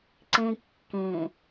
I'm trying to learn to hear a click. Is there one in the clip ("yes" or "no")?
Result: yes